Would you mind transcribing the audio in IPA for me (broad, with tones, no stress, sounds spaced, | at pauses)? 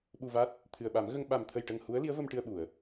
ɓ u˧ v a˦˥ t̚ | t̪ʰ ɨ˨˩ ə̯ ɓ a˨˩˦ m ɣ ə˧ ŋ ɓ a˨˩ m t̪ʰ ə˨˩ j ʈ ə˨˩ ŋ h u˧˥ ə̯ l i˧˥ ə̯ v ə˧ m ʈ ɨ˧ ə̯ ɓ u˨˩˨ ə̯